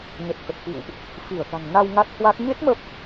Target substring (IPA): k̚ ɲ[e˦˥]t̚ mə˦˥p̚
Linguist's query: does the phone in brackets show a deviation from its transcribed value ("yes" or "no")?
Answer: no